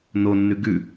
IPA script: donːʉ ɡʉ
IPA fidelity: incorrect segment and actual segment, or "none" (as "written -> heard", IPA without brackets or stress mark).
d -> n